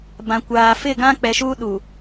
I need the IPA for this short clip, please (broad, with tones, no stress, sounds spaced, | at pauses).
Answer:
b ã˨ kʷ aː˨ f ɪ˦˨ ɡ ã˦ k͡p ɛ˨ ʃ uː˦ ɗ u˨